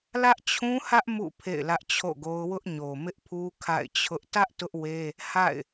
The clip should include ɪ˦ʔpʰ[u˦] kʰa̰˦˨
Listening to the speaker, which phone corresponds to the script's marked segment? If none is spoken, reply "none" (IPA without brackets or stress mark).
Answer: u˦